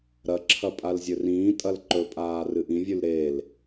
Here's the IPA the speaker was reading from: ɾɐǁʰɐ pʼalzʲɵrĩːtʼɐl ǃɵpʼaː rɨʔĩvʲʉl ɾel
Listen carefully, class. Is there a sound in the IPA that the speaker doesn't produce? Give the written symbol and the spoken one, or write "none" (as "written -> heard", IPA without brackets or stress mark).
none